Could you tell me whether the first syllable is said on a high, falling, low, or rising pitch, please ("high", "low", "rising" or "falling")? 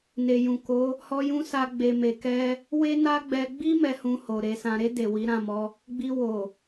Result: low